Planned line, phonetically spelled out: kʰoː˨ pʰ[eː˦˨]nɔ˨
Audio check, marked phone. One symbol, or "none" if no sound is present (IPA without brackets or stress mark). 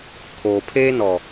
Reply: eː˦